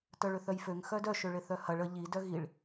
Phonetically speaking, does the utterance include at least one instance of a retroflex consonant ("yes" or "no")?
yes